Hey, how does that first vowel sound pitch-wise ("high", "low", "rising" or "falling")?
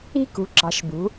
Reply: high